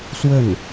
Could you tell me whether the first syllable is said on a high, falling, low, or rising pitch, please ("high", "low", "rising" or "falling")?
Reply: falling